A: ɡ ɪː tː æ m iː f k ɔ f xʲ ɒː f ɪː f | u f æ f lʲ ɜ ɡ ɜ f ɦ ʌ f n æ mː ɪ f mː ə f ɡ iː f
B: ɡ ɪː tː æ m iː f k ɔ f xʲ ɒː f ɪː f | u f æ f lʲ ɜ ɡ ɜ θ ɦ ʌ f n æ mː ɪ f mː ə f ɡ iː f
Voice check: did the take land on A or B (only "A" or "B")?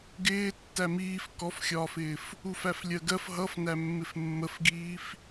A